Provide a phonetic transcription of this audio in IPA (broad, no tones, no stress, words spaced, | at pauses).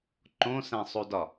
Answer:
ǃõsæ̃sˤudɒ